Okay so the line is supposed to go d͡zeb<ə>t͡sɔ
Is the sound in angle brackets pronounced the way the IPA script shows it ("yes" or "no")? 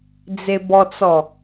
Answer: no